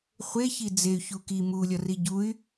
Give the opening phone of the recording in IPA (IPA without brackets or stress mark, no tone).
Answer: χʷ